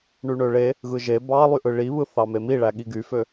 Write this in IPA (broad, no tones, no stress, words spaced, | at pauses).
ɳyɳøɭe | ɣɯʒe bɑlˠyʔɯ ɭiβɯ θɑmemiɭæ ɠiɡyfø